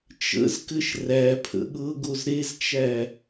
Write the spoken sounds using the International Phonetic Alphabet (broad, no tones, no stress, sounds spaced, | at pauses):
t͡ʃ ə̰ z k ɘ ʃ r æ pʰ ə̰ ɠ ɤ ɡ o z ɾ e z t͡ʃ æ